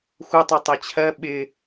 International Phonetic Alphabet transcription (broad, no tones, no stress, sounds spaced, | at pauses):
xʷ ʌ tˤ o tˤ ɛ t͡ɕʰ ɜ ɓ ɪ